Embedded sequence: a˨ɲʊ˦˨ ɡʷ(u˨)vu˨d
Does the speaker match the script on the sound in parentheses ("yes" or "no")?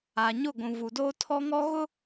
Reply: no